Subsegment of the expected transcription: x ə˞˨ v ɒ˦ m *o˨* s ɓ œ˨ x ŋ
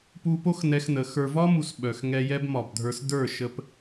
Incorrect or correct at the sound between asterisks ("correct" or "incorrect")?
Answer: incorrect